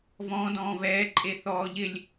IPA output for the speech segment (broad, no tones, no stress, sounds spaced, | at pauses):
v ɔ̃ d ɔ̃ː v ɛː ǃʼ e θ ɔː ʎ ɪ lʲ